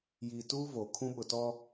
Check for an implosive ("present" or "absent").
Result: present